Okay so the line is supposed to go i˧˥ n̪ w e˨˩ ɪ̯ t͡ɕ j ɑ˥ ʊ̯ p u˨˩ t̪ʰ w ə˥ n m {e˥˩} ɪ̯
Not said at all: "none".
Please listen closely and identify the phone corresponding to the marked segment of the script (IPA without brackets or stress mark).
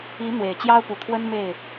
e˥˩